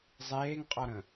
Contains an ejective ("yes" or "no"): yes